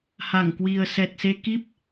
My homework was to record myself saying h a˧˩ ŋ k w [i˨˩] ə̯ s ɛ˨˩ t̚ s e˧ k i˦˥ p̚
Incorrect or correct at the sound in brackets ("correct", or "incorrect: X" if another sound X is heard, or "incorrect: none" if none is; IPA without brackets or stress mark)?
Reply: correct